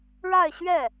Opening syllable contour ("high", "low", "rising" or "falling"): falling